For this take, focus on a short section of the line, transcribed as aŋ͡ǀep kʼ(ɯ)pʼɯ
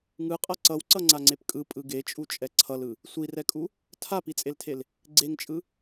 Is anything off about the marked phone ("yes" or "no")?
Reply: no